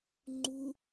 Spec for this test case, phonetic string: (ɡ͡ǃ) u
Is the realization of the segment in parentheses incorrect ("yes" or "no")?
yes